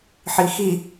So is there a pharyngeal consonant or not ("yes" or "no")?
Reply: yes